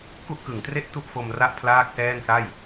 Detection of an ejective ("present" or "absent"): absent